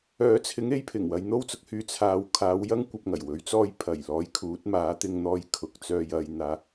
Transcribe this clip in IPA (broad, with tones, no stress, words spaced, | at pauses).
œː˨˥t͡sʰɪ˨˥ŋ e˨˥jpʰɪ˨˩ŋ wɐ˨˧j n̪o˥wt͡sʊ˧k̚hyː˧ t͡sʰaː˨wkʰaː˨˧w jɐ˥ŋ kʷɐ˧p̚ŋɐ˨˩jwɵ˨˧ɥ t͡sɔː˧jpʰɐ˨˩jlɔː˨˥j kʰuː˨˥t̚ maː˨˥t̪ɪ˧ŋn̪ɔː˧jkʰʊ˨k̚ t͡sœː˧jɐ˧jn̪aː˧